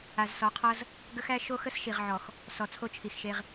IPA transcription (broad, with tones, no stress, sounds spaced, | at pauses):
a˨ z s ɔ˨˦ qʰ ʌ˦ z | ɡ ə˦ x æ˦ ʃ o˦ x ə˦ s ʃ i˨ ʁ ʕ ɔ˨ x | s ɔ˨ t͡sʰ o˦ t͡ʃʰ i˨ x ʃ e˦ ʁ